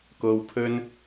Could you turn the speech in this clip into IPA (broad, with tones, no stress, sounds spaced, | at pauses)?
k o˨ w pʰ ɵ˧ n